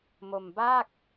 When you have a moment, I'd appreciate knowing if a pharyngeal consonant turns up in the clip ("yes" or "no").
no